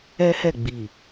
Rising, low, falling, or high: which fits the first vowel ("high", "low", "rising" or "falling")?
high